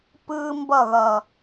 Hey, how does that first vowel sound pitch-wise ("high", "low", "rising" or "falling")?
high